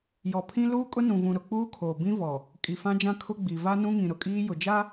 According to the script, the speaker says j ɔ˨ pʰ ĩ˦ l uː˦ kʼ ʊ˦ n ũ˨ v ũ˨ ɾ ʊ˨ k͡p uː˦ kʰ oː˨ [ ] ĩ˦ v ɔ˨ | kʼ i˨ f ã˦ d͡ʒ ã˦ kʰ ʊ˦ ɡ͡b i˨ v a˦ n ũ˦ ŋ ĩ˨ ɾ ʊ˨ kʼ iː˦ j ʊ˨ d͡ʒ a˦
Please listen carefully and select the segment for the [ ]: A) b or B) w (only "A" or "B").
A